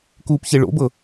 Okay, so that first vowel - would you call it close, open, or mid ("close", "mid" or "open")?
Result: close